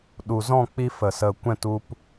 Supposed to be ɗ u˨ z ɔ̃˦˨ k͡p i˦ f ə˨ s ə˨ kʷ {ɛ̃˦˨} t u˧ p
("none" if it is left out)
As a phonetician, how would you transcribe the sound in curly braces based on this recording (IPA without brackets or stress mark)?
ɛ̃˦˨